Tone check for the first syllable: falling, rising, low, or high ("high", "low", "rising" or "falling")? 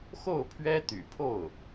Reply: falling